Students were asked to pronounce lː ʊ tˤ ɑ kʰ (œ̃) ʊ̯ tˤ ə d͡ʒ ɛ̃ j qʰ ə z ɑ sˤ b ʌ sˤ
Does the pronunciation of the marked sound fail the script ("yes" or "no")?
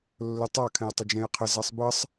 yes